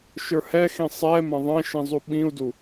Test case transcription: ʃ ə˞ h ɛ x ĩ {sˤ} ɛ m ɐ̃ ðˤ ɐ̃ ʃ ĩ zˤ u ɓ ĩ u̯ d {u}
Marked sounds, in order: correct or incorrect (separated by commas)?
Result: correct, correct